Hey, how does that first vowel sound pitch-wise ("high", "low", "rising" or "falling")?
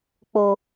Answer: low